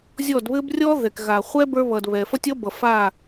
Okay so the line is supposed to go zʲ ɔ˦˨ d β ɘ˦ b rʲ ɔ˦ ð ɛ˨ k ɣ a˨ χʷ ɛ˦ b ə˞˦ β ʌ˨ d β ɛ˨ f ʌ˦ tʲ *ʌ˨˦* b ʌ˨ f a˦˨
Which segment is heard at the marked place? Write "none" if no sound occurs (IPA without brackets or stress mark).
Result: ʌ˦